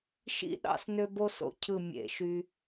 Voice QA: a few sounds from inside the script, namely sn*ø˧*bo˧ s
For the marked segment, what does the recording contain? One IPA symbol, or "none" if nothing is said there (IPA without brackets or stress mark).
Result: ø˧